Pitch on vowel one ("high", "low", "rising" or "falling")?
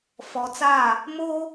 low